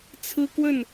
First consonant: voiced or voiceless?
voiceless